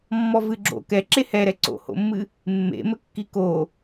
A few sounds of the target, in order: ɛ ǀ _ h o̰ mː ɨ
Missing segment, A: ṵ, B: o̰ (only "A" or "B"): B